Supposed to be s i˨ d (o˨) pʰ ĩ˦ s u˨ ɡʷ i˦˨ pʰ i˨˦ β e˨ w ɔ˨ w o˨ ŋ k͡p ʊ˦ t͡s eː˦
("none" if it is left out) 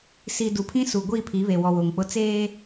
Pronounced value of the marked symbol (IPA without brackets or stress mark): u˨